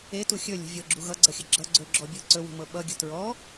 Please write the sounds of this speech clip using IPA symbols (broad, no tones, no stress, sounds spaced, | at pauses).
e t u xʲ ɵ lʲ ṳ vʲ ɤ ɡ͡ǁ u ɣ ʌ ɡ͡ǀ ʌ xʲ ə ɡ͡ǁ ʌ ɡ͡ǀ ɵ ɡ͡ǁ ɔ bʲ ɤ ǀ ɵ w ṳ m ɤ ɓ ʌ ɡʲ ə̤ t ɹ ɔ